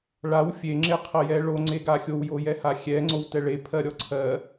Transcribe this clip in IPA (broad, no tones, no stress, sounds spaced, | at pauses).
ɭ a w fʲ e ŋ͡ǁ e qʰ ɜ j ɛ ɭ o ŋ͡ǀ e ɡ a xʲ o w j o j ɛ h a xʲ ɛ ŋ͡ǀ o w t ɛ ɭ e pʰ ɜ ɾʲ ɔ ǀʰ ɜ